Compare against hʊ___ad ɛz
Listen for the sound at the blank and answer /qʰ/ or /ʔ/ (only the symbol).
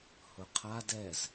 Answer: qʰ